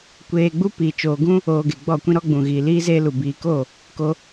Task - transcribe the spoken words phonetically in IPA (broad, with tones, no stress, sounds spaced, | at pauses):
kʷ eː˧ ɡ͡b u˦ p i˨ t͡ʃ oː˨ ɡ ũ˦ | oː˧ ɡ e˨ ɡ͡b ɔ˦˨ kʷ ĩ˦ ɾ ɔ˦ ɡ͡b ũ˨ ɣ iː˨ l iː˦ z eː˦ l u˨ b iː˨ k o˦˨ | k o˧